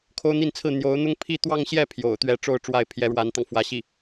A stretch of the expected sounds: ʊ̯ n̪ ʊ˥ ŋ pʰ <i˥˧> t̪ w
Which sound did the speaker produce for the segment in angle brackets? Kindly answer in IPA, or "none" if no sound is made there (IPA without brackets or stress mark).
i˥˧